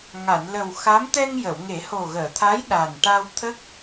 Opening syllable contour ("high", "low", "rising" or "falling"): low